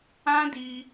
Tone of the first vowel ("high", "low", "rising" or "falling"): high